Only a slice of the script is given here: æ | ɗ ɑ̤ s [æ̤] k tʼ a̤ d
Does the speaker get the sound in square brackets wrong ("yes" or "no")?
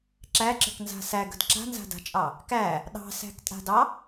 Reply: no